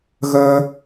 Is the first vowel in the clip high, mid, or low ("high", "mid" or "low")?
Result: mid